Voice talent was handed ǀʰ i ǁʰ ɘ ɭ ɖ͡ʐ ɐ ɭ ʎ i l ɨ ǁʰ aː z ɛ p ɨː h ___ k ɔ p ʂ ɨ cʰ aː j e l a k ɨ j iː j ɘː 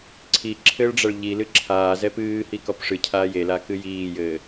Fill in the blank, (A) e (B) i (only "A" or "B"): B